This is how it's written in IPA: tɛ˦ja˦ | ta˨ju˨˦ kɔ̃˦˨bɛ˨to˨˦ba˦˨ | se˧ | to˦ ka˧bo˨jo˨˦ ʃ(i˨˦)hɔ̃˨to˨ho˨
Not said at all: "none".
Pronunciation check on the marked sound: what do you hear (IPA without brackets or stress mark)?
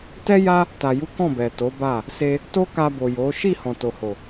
i˦˨